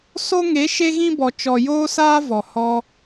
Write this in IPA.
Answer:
so˧ŋe˨˦ ʃe˧ɣĩ˧bɔ˨ t͡ʃɔ˨joː˧saː˧ vɔ˨hɔ˧

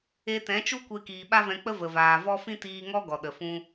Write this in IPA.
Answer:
e˧tɛ̃˨˦t͡ʃu˦kʷe˧ kiː˨ɓa˦vɛ̃˧k͡pə˦ və˨vaː˨vɔ˦ fĩ˦tiː˧ŋɔ˦ ɡɔ˨ɗə˨ fũ˧

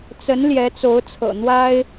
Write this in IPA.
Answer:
t͡sə˧˥n ljɛ˧˥t͡so˧˥ʊ̯t͡sʰɤ̰˨˩n̪wa˥ɪ̯

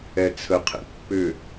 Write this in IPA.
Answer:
ɛt͡sʰəqʰḛ pːʏ

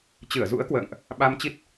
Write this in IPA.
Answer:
t͡ɕɨ˧˩ə̯zṵ˧˥ə̯ kwə̰ː˧˨ŋʔ | ɓa˧mt͡ɕi˦˥t̚

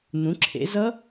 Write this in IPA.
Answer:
n̪ũ˩˧ǁʰḛ˩˧ zʌ˦˥

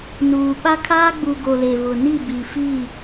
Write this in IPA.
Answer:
nuː˨ɓa˦ kʰaː˦ɡ͡bu˨ ɡo˨le˨ βʊ˨ni˦˨ bi˨fi˦˨

